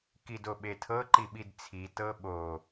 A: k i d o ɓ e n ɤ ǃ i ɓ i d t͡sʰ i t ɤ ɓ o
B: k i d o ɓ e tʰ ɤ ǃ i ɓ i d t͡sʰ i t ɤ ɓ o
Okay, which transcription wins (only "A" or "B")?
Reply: B